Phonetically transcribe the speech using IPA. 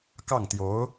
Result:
kɑ˥˩ŋt̪jo˧˥ʊ̯

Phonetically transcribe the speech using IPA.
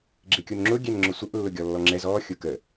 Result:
ɡ͡ǁɪkʲunŋ͡ǁʊ ɡʲɛnŋ͡ǁʊsʷəʔ lːʊɡʲɔlːɔŋ͡ǁɛz ɔ xʲʊkə

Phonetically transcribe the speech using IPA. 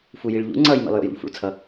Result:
fujiɭʎṵ ŋ͡ǀʌːjmḭlˠjo̰ jṵʎfṵɭt͡sʰʌ

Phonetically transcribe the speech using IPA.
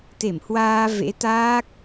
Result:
t̪e˧˩mhwaː˧ vḛ˧˥ t̪aː˦˥k̚

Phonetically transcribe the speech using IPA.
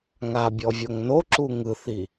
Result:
ŋabʲɔ vʲoŋnoǁu ŋɯθi

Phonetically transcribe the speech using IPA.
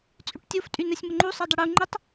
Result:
t͡sʼyʈtʲof tʼynɛsʲməŋ͡ǃu sˤɛdˤəɽu ŋ͡ǃətˤ

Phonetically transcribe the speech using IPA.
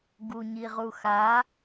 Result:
ɡuɲiʁuxa

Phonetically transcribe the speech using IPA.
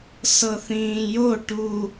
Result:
sɤθĩːjo ʈu

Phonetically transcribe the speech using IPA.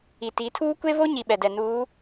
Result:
i˨ti˨˦tʰuː˦ kʷe˦βo˦ɲi˨ ɓɛ˨dɛ˨nuː˨˦

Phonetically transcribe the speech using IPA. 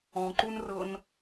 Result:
ɔ̃ǃunrɤn

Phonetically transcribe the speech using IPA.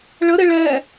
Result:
ɭəɾɪ ɭɛ

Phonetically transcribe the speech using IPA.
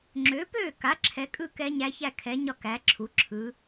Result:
ŋ͡ǁø˩˥ pøː˥˩ka˩˥ ǁʰɛ˩˥kʼɯ˥˩ kɛ˧˥ɲæ˧˥ çæ˥˩kʰɛ˩˥ɲɒ˥˩ kæ˩˥ǁʰu˩˥ ǁʰɯ˩˥

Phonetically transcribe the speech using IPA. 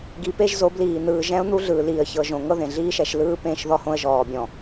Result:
ɡi˨pe˦ʒ zo˨˦bliː˨ n̪ɯː˨ʒɛ̃˦ʊ̯ n̪u˦ɮɯː˨ liː˨ə̯çɤ˨ʒõ˨ ŋɤ˦ðẽ˨ ɮiː˦ʃɛ˨ʃlɯː˦ pẽː˦ʃðɔ˦hõ˦ə̯ ʒɔː˨bʲɔ̃˨

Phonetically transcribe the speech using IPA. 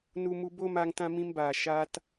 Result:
nu˧mu˧bo˦ma˧ŋ tã˦mĩ˦mbaː˨ ʃaː˧t

